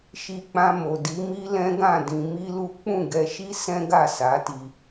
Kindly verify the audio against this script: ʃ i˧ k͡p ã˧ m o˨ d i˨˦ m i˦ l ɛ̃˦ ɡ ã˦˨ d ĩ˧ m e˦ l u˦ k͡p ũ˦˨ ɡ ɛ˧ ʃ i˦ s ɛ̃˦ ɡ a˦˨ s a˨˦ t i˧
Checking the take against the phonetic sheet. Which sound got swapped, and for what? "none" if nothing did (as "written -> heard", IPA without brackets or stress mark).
e˦ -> i˦